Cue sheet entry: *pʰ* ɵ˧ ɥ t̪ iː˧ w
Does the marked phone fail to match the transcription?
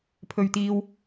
no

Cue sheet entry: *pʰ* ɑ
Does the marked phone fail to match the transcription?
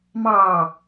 yes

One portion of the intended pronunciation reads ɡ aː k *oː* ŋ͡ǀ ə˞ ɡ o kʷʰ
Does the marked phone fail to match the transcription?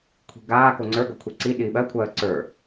yes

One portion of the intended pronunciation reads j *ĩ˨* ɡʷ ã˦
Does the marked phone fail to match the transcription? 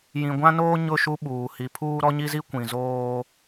no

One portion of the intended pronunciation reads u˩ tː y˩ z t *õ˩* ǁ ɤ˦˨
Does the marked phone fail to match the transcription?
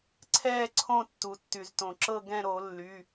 no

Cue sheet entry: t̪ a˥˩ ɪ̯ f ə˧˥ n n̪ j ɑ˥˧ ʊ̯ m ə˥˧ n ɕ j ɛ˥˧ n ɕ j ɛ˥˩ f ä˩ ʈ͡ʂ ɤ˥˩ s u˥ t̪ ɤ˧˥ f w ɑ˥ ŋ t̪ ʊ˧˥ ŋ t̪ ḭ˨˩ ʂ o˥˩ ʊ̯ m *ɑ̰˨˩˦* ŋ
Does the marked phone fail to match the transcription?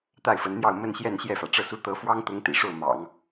no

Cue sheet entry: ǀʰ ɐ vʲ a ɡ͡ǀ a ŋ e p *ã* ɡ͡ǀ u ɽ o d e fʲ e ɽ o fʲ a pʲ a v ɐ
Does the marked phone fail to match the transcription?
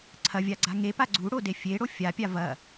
yes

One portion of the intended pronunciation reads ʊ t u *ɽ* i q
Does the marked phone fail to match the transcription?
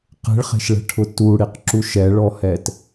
no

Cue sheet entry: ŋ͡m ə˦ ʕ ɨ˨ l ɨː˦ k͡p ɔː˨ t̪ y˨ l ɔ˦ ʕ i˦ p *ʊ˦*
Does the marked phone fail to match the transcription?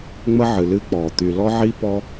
yes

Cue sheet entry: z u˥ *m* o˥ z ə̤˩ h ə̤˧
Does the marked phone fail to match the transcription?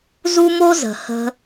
no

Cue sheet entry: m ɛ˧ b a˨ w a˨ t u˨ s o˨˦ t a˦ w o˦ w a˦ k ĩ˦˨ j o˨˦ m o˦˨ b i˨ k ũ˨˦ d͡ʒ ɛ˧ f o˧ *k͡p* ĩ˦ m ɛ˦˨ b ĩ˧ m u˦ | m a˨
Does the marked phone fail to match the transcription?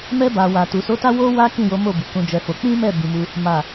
no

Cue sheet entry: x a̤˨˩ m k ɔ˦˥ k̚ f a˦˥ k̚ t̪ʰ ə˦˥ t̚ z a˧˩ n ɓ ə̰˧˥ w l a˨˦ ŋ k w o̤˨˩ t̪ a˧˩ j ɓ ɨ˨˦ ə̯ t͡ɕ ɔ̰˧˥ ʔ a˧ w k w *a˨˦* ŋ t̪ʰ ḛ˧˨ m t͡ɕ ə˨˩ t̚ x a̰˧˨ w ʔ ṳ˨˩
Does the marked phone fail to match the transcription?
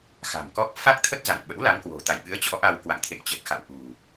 yes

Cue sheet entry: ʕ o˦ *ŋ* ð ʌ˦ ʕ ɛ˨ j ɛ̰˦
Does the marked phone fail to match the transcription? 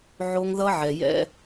no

